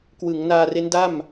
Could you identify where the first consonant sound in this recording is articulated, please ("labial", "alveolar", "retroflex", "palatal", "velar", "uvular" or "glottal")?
velar